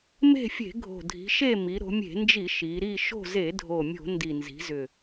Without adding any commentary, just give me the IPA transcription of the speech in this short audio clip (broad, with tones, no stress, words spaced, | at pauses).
me̤˦˨ fʲe̤˧˩˧ɡʱo̤˨˩ dʱi̤˩˧ʃe˦˨ mi˩˧ ɾo̤˩˧mʲe̤˧˩˧nd͡ʒi˧˩˧ ʃi˩˧ ɾi˦˨ ʃo̤˦˨ze˧˩˧dʱo˨˩ mʲo̤˧˩˧ ndi˨˩nzi̤˩˧zʏ˨˩